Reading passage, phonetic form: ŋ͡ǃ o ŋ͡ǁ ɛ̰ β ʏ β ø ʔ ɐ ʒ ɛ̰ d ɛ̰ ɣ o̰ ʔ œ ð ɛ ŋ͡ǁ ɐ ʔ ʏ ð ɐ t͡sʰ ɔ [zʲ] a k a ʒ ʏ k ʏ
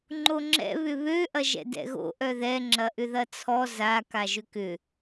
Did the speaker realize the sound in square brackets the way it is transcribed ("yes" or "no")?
no